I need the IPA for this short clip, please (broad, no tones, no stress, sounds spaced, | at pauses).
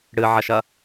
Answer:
ɽ ɨ ʕ ɐ ʃ ɐ